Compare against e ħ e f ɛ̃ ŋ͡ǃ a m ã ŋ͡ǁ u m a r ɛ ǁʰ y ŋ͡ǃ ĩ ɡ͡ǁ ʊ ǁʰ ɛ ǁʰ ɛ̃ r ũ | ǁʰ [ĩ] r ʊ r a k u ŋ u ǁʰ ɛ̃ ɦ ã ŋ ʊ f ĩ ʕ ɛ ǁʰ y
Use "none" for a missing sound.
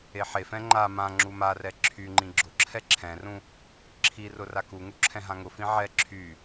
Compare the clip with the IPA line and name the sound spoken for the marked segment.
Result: i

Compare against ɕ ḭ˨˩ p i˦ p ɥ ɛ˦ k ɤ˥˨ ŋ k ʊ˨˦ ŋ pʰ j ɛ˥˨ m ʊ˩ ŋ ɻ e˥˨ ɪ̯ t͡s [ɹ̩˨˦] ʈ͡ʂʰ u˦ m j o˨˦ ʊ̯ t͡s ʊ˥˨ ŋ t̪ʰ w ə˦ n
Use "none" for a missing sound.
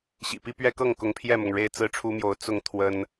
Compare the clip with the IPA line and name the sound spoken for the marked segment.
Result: ɹ̩˥˨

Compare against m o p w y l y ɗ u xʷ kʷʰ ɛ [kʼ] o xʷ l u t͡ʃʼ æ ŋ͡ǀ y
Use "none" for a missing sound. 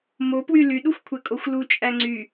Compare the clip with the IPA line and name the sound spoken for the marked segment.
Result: kʼ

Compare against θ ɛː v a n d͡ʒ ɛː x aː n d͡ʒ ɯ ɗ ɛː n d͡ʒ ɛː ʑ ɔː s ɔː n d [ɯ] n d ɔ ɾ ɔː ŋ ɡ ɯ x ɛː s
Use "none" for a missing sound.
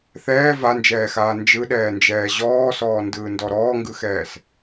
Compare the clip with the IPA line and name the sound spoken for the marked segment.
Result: ɯː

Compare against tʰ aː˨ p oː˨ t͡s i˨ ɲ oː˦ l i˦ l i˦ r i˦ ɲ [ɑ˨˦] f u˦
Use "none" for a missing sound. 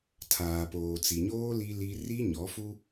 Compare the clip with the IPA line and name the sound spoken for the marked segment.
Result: ɔ˨˦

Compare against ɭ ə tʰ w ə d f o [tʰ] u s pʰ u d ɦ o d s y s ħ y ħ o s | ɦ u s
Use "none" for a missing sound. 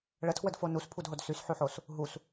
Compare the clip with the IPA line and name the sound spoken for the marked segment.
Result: n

